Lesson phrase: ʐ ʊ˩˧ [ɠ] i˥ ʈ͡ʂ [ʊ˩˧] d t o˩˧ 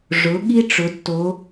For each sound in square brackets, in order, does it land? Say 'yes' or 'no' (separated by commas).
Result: yes, yes